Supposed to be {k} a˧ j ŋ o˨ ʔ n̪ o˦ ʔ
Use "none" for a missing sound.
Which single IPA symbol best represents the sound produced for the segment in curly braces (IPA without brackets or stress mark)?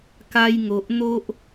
k